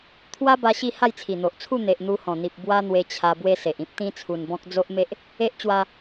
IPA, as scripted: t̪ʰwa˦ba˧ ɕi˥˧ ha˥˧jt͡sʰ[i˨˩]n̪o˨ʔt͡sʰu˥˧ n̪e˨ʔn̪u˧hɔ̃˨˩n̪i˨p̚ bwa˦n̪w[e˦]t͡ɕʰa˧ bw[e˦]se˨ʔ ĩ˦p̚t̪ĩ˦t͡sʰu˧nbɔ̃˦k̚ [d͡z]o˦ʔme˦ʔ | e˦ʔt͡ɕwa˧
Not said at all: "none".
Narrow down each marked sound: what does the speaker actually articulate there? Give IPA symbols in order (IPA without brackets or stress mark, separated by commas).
i˨˩, e˧, e˦, d͡z